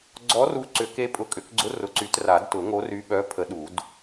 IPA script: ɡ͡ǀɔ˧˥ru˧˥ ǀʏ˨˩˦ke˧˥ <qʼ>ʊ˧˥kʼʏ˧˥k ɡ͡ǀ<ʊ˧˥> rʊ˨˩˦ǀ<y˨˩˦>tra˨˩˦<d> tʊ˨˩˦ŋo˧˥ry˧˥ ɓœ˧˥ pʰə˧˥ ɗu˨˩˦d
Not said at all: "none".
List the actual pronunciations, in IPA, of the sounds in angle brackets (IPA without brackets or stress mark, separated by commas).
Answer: pʼ, ʊ˧˥, y˨˩˦, d